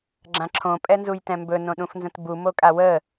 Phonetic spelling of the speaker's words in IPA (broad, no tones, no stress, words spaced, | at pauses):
ɡ͡ǁãǁʰõ pʼɛnzujtɛ̃mbɵ nõɗũfnzə̃tbu mokʼawə